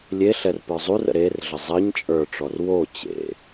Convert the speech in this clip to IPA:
lʲeɬɛr pə˞zˤurə̰ ɾerɮə zˤɜɲ t͡ʃʼə˞ʈ͡ʂɔr wo t͡ɕḛ

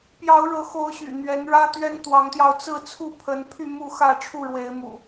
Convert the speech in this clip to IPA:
pjɑ˨˦ʊ̯ɻɤ˨˦xo˨˦ʊ̯ ɕy̰˨˩n̪ɥɛ˨˦nɻä˦ t̪ɥɛ˦nt̪wɑ˨˦ŋt̪jɑ˧ʊ̯ t͡sɹ̩˥˨ t͡sʰu˥˨pʰə˨˦npʰy˥˨ mu˥˨xä˥˨ ʈ͡ʂʰu˥˨ɻwe˨˦ɪ̯mṵ˨˩

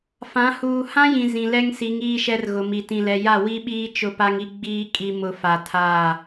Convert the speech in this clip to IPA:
fã˨˦ huː˨hã˦jĩ˨ zĩ˨lɛ˦ŋsi˨˦ŋ iː˦ʃɛ˦rɣʊ˨mi˨ tĩ˨lɛ˨ ja˦˨wi˦ɓiː˦ t͡ʃʊ˦pa˦ŋi˦ ɡ͡biː˦ kʼi˦mʊ˦ fa˨ tʰaː˦˨

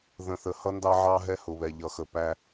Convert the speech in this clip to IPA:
ðə̃˨θə˨hʌ˦ ndɑ˦ʕɑ˦ ɦɛ˦hʊ˨βɛ˨ ʎʌ˨xə˨pæ˦

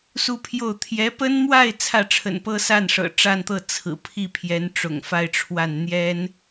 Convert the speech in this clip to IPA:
su˥˧pʰjo˥˩ʊ̯ t̪ʰjɛ˧˥pə˥nmwa˥˧ɪ̯ t͡sʰä˥˩ʈ͡ʂʰə̰˨˩npɤ˥sa˥˩n ʂɤ̰˨˩ʈ͡ʂa˥˧nt̪ɤ˥˩ t͡sʰɹ̩˨˩pʰi˥˩pʰjɛ˧˥nʈ͡ʂʊ̰˨˩ŋ fa˥˧ɪ̯ʈ͡ʂʰwa˥˩n n̪jɛ˥n

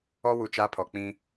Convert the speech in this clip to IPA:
ɔ˦ wu˨ t͡ʃaː˦pʰɔ˨ k͡pĩ˦

